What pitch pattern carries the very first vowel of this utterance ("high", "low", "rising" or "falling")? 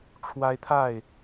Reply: high